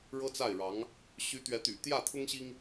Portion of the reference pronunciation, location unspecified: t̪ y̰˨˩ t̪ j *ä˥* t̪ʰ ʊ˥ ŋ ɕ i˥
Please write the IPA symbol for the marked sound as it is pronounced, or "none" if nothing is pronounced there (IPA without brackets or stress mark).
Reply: ä˥˩